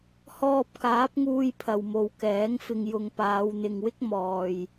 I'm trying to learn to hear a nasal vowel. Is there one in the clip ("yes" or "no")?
no